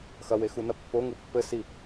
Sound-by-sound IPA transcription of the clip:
x ɐ w e x u n ɐ pː o ŋ u pː ɘ s i

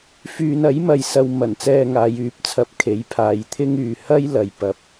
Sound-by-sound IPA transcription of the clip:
f yː˨ n ɐ˨˥ j m ɐ˧ j s ɐ˧ w m ɐ˨˩ n t͡s ɛː˧ ŋ aː˨˧ j yː˨ p̚ t͡sʰ ɐ˧ p̚ kʰ e˨˥ j pʰ aː˨ j t̪ʰ ɪ˥ ŋ yː˨ h ɐ˥ j l ɐ˨ j p ɐ˨˥ p̚

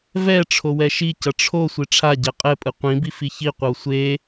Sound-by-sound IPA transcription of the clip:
v ɛ ʈ͡ʂʰ o w ɛ ʃ i c ʌ ʈ͡ʂʰ o sʷ i ʈ͡ʂʰ a ɟ ɛ qʼ ɛ pʼ ɯ qʷ ĩ b i f i ç i qʷ ʌ w sʷ e

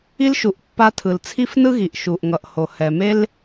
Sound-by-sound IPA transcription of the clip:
i˧ l ʃ u˨ ʔ pː a˧ tʰ ɯ˨ l t͡sʰ i˦ f n ɯ˦ ɣ i˨ ʔ ʃ u˨ ʔ ŋ ʌ˨ ʔ h o˨ h ɛ˨ m e˦ l

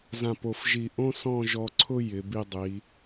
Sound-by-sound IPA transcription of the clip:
z ã˧˩ p o˧˩ f ʒ i˧˩ ʔ õ˥ s ɔ̃˥˧ ʒ ɔ˧ ǀʰ ʊ˥ j ɪ˩˧ b i˧ dˤ i˩˧

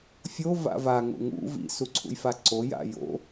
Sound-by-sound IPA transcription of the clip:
fʲ o v a̰ v a ŋ o̰ ŋ ṵ v ḭ s u ǀʰ ṵ j f a ǀ o j a̰ j o̰

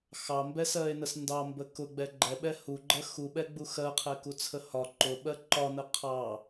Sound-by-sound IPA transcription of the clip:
x ɑ m b ɛ s ɜ e̯ n ə s n d ɑ m b ə k ʊ ɡ͡b ɛ ɡ͡ǃ ɛ ɓ ɛ h u ɡ͡ǃ ɜ x u ɓ ɛ ɡ͡b u x ɜ qʰ ɛ k u t͡sʰ ə h ɒ ǃ ʊ ɓ ɜ ǃ ɒ n ə qʰ ɑ

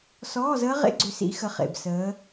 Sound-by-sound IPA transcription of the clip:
s ɔː˧˥˧ z əː˦˥ ʁ ḛ˦˥ ɡ͡ǀ ʏ˨˦ s ḭ˨˦ x ə˨˦ χ ḛ˨˩ b s əː˨˦

